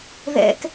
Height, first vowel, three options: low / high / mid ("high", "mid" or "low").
mid